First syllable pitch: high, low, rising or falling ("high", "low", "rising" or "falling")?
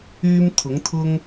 high